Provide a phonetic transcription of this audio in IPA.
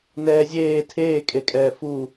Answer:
n ɛː zʲ eː tʰ eː kʼ e kʼ ɛː f u

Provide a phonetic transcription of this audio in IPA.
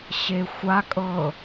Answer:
ɕ e xʷ a kʼ ɤ

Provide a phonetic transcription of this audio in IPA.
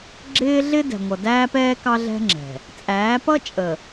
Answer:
ɡ͡ǁ ɪː˦ ɮ ɪ˦ d ɛ̤˨ ŋʷ ʌ˨ d æː˦ p ɛː˦ k ɑ˦ ɮ ɛ̤˦ ŋ͡ǁ ɛ̤˨ | t͡sʼ æː˨˦ p ʌ˦ t͡ʃʼ ə˨

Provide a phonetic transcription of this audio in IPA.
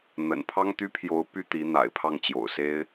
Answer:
n̪ ə̰˨˩ n pʰ ɑ˥ ŋ t̪ y˥ pʰ j o˧˥ ʊ̯ p y˥˩ t̪ i˧˥ n̪ a̰˨˩ ɪ̯ pʰ ɑ˥˩ ŋ t͡ɕ j o̰˨˩ ʊ̯ s e˥ ɪ̯

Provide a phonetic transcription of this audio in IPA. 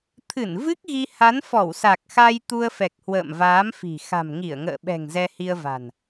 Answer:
t̪ʰ ɨ˧˩ n v ɨ˦˥ k̚ ɣ i˧ h a˨˦ n f ɔ˧˩ w s a˨˩ k̚ x a˧ j t̪ u˧ ə̯ f ɛ˨˩ k̚ h w ə̰ː˧˨ m v aː˨˦ m f i̤˨˩ x a̤˨˩ m ŋ i˧˩ ə̯ ŋ ə̰ː˧˨ ɓ ɛ̤˨˩ ŋ z ɛ˧ h i˧ ə̯ v a̤˨˩ n

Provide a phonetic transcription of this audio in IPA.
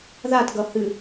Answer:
ð a t ɡ ʌ h ɨ

